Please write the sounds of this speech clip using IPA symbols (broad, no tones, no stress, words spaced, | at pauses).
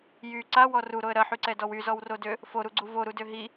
jy ǀawɔ ruɾoə̯ ɾɐħyǀɛdɔw yzɔwrodø | foɾuɡ͡ǀu voɾudø ɦi